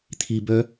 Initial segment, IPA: t̪ʰ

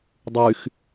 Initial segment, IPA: dˤ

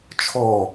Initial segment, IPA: t͡ʃʰ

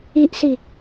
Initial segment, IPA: i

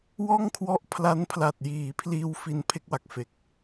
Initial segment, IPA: w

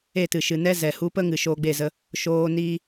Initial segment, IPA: e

